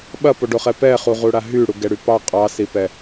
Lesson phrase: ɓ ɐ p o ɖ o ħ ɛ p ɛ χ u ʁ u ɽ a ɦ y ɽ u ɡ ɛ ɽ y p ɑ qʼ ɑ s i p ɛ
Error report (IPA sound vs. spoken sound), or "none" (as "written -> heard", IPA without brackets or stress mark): ħ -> χ